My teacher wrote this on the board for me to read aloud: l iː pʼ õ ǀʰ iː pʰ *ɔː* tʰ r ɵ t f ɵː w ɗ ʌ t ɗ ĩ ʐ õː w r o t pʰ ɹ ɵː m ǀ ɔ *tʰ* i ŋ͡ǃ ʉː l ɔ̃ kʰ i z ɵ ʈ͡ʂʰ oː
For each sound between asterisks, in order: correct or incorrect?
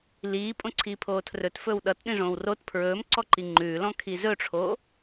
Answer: incorrect: oː, incorrect: ǃ

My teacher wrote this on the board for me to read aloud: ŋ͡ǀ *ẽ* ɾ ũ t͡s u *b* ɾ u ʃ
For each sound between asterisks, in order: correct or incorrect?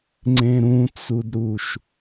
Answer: correct, incorrect: d

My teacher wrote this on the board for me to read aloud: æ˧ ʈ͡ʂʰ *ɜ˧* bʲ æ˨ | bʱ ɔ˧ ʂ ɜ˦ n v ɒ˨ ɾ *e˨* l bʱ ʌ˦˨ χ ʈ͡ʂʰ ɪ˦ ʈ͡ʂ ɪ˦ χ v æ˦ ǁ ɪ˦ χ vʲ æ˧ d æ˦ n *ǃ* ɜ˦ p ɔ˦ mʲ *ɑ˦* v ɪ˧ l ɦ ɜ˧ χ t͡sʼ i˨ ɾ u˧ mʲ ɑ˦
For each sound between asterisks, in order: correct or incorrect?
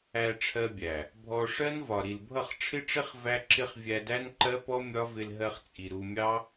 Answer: correct, incorrect: i˨, correct, incorrect: ɒ˦

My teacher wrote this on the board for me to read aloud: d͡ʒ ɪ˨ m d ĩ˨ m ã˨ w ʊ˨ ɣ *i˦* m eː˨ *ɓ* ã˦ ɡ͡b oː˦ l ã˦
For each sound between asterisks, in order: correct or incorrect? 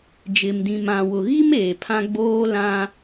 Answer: correct, incorrect: pʰ

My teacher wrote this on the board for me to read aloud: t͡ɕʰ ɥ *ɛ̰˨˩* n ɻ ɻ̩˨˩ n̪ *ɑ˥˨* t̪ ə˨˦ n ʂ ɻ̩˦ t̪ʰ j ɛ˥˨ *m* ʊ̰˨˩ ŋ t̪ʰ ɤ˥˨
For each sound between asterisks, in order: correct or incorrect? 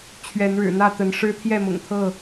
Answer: incorrect: ɛ˨˦, incorrect: ä˥˨, correct

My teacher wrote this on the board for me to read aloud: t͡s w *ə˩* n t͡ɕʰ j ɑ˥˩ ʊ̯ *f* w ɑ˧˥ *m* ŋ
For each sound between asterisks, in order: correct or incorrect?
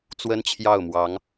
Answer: incorrect: ə˥, incorrect: m, incorrect: none

